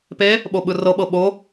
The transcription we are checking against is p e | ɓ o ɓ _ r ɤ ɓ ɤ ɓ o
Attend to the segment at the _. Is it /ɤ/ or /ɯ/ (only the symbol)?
ɯ